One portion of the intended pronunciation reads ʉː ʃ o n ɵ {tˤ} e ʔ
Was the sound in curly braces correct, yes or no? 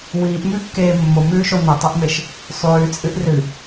yes